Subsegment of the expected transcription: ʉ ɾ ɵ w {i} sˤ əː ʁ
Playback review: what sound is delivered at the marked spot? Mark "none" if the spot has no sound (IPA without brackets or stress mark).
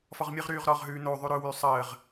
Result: y